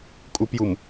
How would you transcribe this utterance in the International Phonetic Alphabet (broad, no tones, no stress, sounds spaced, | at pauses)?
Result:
kʼ u p j u m